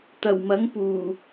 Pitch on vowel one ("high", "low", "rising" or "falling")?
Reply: low